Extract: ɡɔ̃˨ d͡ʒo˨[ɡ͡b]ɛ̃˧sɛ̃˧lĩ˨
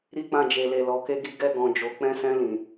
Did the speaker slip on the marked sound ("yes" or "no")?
yes